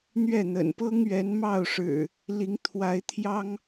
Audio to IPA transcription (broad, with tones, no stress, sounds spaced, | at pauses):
n̪ ɥ ɛ˥˨ n̪ ə̰˨˩ n p ɤ˦ ŋ ɥ ɛ˨˦ n m ɑ˥˨ ʊ̯ ʂ ɻ̩˨˩ | l i˨˦ ŋ t̪ʰ w a˨˦ ɪ̯ t̪ʰ j ɑ˦ ŋ